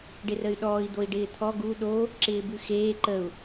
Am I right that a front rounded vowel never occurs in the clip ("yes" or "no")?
no